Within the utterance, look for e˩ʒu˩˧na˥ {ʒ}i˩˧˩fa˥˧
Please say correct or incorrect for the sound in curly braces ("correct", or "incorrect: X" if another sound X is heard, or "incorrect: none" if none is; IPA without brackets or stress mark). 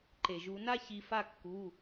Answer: incorrect: ç